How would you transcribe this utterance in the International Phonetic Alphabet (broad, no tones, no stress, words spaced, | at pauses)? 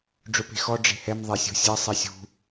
ɖ͡ʐʊpe̤xɔ ɖ͡ʐe̤hɛm ðˤesʲṳsʲɛ sˤisʲṳ